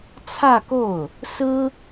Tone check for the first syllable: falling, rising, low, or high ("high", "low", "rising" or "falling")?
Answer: falling